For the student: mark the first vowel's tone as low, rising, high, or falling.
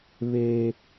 high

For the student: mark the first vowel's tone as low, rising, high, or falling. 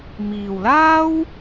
low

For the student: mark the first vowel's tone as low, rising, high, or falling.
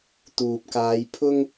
low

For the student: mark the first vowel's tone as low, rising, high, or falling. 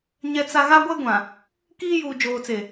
high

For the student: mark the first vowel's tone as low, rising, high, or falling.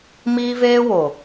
high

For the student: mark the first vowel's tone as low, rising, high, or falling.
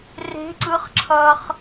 rising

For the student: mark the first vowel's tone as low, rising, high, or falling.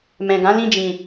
low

